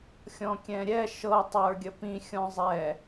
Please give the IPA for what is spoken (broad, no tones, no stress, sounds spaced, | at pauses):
xʲ ɔ̃ kʲ ɛ̃ ɾʲ ɛ ʃ ɤ tˤ ə˞ ɡʲ ə p ĩ xʲ ɔ̃ zˤ ɛ